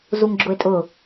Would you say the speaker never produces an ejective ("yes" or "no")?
no